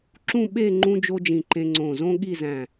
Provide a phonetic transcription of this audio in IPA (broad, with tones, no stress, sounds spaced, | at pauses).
ǁ ũ˥˧ ɓ e˥˧ ŋ͡ǃ ũ˥ d͡ʒ o˥ d͡ʒ ĩ˧˩ ǃ ẽ˧ ŋ͡ǀ õ˧˩ z õ˥ ɠ i˥˧ z æ̃˧˩